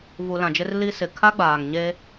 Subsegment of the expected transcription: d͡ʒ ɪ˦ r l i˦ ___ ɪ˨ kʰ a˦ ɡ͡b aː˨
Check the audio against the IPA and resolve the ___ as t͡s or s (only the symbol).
s